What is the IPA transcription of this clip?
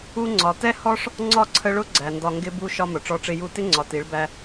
u˧ ŋ͡ǀ ɒ˨ t ɛ˦ h ɔ˦ ʂ | ŋ͡ǀ ɒ˦˨ ǀʰ ə˧ ɭ ʊ˦ ɡ͡ǀ æ˨ n d ɒ˧ ŋ ɡ ɪ˦ b u˦ ʃ ɒ˦ m ʊ˨ ʈ͡ʂ ɔ˧ ʈ͡ʂ ɪ˧ j u˦ t ɪ˦ ŋ͡ǀ ɒ˨ t i˨˦ ɭ b æ˧

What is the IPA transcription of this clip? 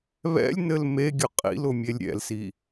β ɛ̰ lʲ n ɘ l m e ɡʲ ʊ qʼ ḭ l ʊ mʲ e lʲ ɾʲ ɛ̰ l s i

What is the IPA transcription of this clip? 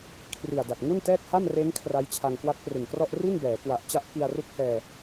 kʰ r i˨˩ a̯ d a˨˩ t̚ ŋ u˥˩ n t ɛː˥˩ k̚ h a˥˩ m r eː˦˥ ŋ kʰ r a˦˥ j t͡ɕʰ a˧ ŋ k w a˦˥ t̚ p r ɯ˨˩ ŋ k r ɔ˥˩ ʔ r i˥˩ n b ɛː˩˦ k w a˨˩ ʔ t͡ɕ a˦˥ ʔ k i˧ a̯ r u˦˥ k̚ h ɛː˧

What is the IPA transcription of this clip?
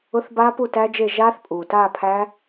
ʊ˧˥˧ θ b a˦˥ p u˥˨ t æ˦˥ d͡ʒ e˥˨ ʒ aː˦˥ θ pʼ uː˩ t aː˥˨ pʰ æ˦˥

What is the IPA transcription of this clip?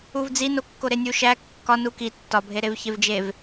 u v d͡z i n o kː o ɾ e nʲ u ʃ æ kː ɒ n u k i tː ɒ bʱ e ɾ e v ç e v d͡ʒ e v

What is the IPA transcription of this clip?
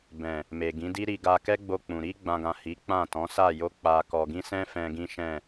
b ɛ̃˨ | m e˨ ɡ ĩ˨˦ d i˦ ɾ i˧ ɡ a˧ k ɛ˦ ɡ͡b o˧ k͡p ũ˨ ɾ i˧ ɡ͡b ã˨ ɡ ã˨ h i˨˦ k͡p ã˦˨ t ɔ̃˨˦ s a˦˨ j o˧ k͡p a˨ k ɔ˨ ɡ ĩ˧ s ɛ̃˦ f ɛ̃˧ ɡ ĩ˦ ʃ ɛ̃˦˨

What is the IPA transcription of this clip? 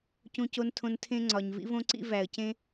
c ũ˧ c o˧ n tʰ õ˧ n tʰ ẽ˦ ŋ͡ǀ ɒ˨ ɲ v ḭ˦ v õ˦ ǀ ḭ˦ v æ˨ ə̯ c ẽ˦

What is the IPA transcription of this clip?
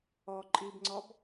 ɔ ǃʼ i b ŋ͡ǀ ɔ b

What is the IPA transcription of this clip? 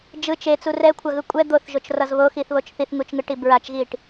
d͡ʒ ɯ t͡ʃ e t͡s u r ɛ kʷʰ a ɣ ɯ kʷʼ ɛ d̪ o θ ʒ o t͡ʃ r ʌ z β o x i θ β o t͡ʃ θ i θ ŋ u t͡ʃ ŋ ɯ ʈ i b ɹ a t͡ʃ ɣ i ʈ

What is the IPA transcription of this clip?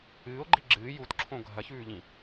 ɨː o̯ ɡ͡ǃ i ɡ͡ǁ ɨː j u t ǁʰ õ ɡʱ ɐ ç ʉː ʎ ĩ

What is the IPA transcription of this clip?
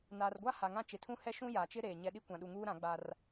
n aː˨ r ɡʷ a˦ h a˨ ŋ ã˦˨ t͡ʃ ɪ˨ tʰ ũ˦ h ɛ˦ ʃ ũ˦ j aː˨ t͡ʃ ɪ˦ ɾ eː˨ ɲ ɛ˦ ɗ i˦ kʷ ã˨ ɗ u˨ ŋ uː˦ ɾ ã˨˦ ɡ͡b a˦ r

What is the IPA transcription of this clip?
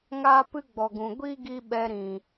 ŋ aː˦ p ɨ˦ ɡ͡b ɔ˨ ɡ ũ˨ ɡʷ i˦ ɡ i˧ ɓ ɛ˧ ɾ ĩ˨

